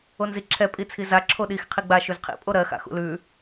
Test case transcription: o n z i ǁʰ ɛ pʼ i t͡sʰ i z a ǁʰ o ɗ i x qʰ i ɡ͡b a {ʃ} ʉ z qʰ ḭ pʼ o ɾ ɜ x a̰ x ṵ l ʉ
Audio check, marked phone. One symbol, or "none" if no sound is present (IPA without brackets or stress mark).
ʃ